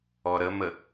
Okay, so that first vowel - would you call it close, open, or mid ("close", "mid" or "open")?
mid